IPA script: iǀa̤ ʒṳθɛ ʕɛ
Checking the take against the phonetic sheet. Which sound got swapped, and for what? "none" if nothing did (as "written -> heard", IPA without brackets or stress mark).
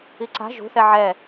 none